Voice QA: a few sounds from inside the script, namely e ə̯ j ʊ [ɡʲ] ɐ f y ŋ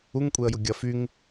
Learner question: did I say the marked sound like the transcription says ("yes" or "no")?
yes